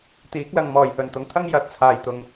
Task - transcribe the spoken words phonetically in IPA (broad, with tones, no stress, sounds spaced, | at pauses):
t̪ iː˨˥ k̚ l ɐ˨ ŋ m ɔː˨˩ j h ɵ˨˩ n t̪ ʊ˨ ŋ t̪ʰ ɐ˥ ŋ j ɐ˨˥ t̚ t͡sʰ aː˨ j t̪ ʊ˨ ŋ